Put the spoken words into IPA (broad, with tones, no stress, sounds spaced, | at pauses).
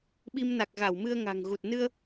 ɓ i˧ m n a˨˩ k̚ ɣ a˧˩ w m ɨ˧ ə̯ ŋ a̤˨˩ ŋ ɣ u˨˩ t̚ n ɨ˧ ə̯